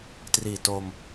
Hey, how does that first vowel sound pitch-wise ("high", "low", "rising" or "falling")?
low